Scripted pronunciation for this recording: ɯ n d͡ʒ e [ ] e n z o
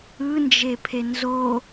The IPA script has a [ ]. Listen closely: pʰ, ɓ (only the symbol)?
pʰ